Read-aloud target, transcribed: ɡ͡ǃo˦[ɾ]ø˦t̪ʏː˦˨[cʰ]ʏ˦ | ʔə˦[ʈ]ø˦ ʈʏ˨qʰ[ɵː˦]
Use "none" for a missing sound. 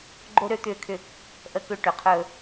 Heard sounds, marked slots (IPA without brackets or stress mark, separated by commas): ɾ, kʰ, k, ɵː˦